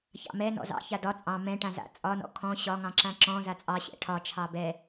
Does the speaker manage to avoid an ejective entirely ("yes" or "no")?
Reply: no